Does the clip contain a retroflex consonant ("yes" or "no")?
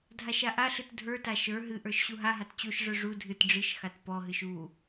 yes